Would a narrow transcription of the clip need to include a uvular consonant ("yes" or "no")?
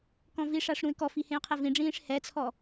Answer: yes